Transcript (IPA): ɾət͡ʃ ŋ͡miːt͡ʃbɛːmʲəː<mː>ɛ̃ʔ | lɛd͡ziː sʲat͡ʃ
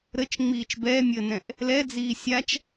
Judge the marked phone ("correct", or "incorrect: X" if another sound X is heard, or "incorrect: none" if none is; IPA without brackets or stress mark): incorrect: n